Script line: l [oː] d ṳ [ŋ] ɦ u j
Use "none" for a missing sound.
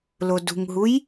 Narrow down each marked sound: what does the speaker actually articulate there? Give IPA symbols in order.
o, ŋ

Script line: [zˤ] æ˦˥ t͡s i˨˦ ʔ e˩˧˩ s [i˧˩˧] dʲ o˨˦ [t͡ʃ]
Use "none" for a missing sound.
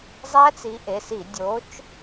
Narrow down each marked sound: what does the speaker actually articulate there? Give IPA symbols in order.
zˤ, i˧˩˧, t͡ʃ

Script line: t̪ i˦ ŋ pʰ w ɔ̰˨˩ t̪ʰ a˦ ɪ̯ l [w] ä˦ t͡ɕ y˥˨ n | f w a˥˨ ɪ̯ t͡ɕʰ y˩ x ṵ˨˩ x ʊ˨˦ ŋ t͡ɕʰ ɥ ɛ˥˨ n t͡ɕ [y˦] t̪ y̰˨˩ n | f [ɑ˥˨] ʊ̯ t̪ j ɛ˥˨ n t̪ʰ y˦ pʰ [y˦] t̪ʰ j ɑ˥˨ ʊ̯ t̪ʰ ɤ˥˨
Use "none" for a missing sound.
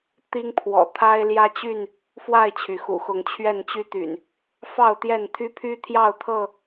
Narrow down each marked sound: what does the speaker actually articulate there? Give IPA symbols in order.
j, y˦, ɑ˥˨, y˦

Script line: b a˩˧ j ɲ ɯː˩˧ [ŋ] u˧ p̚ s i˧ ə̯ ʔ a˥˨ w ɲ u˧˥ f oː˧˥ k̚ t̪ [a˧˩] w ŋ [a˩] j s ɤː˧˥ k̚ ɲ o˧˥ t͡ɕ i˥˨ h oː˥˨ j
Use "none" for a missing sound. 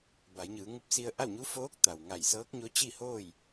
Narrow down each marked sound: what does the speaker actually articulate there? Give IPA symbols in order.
ŋ, a˩, a˧˩

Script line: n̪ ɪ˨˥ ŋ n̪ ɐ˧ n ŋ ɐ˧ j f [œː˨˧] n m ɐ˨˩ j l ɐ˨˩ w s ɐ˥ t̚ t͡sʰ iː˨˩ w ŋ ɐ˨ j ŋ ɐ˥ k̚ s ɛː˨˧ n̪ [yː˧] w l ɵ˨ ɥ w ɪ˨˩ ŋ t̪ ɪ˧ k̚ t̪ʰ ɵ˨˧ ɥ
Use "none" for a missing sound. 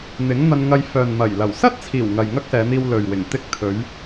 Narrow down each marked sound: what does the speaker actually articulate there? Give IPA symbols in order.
œː˨, iː˧

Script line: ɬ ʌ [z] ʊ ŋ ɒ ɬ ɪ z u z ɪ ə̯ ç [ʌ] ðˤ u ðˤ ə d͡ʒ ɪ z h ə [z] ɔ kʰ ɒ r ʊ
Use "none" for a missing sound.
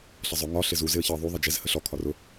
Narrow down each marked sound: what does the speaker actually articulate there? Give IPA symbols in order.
zˤ, ʌ, ɬ

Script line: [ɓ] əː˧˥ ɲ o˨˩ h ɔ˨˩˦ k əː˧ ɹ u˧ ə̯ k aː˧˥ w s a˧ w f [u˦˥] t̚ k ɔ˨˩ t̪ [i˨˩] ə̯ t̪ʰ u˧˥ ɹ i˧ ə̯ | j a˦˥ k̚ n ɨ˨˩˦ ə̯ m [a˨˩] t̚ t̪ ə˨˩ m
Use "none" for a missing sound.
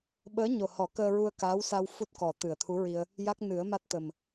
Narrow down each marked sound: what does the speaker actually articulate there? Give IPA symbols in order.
ɓ, u˦˥, ɨ˨˩, a˦˥

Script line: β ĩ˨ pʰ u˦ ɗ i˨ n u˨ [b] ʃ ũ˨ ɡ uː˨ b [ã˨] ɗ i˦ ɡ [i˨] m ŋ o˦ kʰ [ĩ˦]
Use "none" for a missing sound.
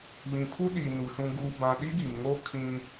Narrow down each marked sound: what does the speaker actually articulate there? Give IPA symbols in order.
none, ã˨, i˨, ĩ˦

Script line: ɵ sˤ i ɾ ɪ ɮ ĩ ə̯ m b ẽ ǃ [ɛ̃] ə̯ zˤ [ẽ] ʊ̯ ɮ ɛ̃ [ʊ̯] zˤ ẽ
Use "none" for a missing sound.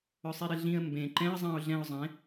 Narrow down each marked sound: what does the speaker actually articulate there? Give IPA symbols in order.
ɛ̃, ĩ, ʊ̯

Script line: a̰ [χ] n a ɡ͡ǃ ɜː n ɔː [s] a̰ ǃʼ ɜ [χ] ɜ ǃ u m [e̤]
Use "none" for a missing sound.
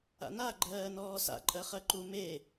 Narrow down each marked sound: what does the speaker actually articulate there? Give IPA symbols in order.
none, s, χ, e

